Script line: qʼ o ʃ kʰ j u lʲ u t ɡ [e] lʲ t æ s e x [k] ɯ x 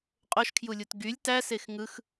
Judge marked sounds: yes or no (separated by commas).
no, no